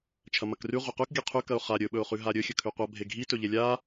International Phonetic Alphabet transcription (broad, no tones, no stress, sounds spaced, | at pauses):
t͡ʃʰ ɐ m ɐ k r ʉ ʁʷ ɐ q ʉ k ɡʲ a qʰ ʉ k ɐ ʊ̯ χ a ɾʲ ɵ ɓ ɵ ʊ̯ χ ʉ ɦ a ɾʲ ɵ xʲ ɵ kʰ ʉ qʷ a bʱ e ɡʱ i t ɵ ʎ e lʲ a